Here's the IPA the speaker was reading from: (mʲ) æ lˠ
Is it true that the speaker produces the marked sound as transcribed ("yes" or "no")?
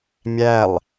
yes